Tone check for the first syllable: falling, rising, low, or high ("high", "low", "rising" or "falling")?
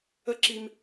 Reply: high